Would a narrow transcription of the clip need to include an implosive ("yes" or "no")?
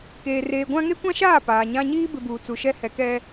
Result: no